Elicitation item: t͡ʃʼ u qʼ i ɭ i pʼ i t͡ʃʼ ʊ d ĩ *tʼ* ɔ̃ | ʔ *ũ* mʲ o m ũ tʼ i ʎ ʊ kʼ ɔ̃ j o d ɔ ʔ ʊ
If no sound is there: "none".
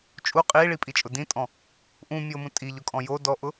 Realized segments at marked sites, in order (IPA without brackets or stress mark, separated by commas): tʼ, ũ